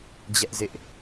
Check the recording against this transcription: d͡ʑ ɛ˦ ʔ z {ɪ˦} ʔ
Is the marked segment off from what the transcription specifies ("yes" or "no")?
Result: no